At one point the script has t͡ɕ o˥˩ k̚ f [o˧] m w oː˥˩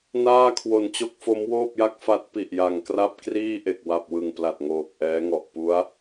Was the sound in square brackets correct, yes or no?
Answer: no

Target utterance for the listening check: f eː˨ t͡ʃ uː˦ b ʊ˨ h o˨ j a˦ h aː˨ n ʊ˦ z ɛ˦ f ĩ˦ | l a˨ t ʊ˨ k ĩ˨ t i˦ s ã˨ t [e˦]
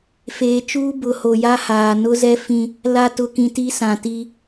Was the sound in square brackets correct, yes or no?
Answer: no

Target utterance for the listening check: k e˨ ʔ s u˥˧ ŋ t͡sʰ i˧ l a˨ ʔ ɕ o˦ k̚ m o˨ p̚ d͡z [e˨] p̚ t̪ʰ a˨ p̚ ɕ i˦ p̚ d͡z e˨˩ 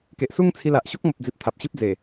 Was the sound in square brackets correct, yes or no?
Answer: no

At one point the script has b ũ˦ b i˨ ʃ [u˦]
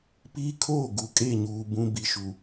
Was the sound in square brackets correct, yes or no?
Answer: no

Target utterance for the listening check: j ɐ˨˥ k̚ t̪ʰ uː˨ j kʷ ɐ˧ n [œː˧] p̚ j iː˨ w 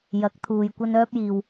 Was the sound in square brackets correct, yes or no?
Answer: yes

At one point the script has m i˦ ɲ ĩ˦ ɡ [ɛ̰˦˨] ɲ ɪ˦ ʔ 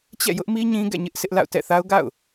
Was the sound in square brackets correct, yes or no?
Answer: yes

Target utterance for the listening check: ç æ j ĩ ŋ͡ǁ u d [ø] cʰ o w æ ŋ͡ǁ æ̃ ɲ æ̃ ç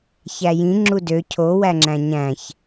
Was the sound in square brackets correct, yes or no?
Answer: yes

